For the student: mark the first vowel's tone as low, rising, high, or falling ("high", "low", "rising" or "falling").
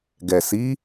low